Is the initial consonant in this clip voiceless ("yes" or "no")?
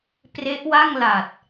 yes